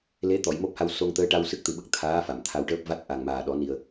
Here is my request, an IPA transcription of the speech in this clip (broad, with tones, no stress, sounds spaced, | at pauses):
l e˧˥ t̪ ɔ˨˩˨ j m o˦˥ p̚ h a˧ w s o˧ ŋ t̪ əː˧˥ ʈ a˧ w s ɨ˦˥ k̚ t̪ ɨ˨˩ ɓ ə˦˥ k̚ t̪ʰ aː˧˥ f a˨˩˨ m t̪ʰ a˧ w ʈ əː˦˥ p̚ v a˦˥ t̚ ʔ a˨˩ ŋ m aː˨˩ ɗ ɔ˨˩˦ n i˨˩ ə̯